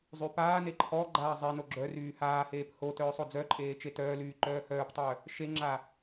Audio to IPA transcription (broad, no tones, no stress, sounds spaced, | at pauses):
zˤ y p aː n e ǃʰ ɔ ɡ͡ǃ aː zˤ e n o ɡ͡ǁ œ r yː h aː h eː p h o t œː sˤ o d͡z œ ǃʼ eː t͡ʃ e t œː l yː ǃ œː h œː p tˤ œ | ʃ e ŋ͡ǁ a